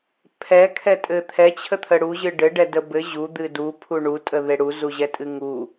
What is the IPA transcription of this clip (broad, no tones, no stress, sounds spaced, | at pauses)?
pʰ ɛ kʰ ɛ tʼ ɘ t̪ʰ ɛ t͡ɕʰ ə t̪ʰ ə ɽ u ʑ ɨ ɖ ɘ ɖ ɛ d ə b ɘ ʑ u d̪ ɨ d u pʰ u ɳ u tʼ ə ð e ɽ u z u ʑ ɛ tʼ ɨ ŋ u